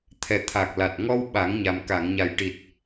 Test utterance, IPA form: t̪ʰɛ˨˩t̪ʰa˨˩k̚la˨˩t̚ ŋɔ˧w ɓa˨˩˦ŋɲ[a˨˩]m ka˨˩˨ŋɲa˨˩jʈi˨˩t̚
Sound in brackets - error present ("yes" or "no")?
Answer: no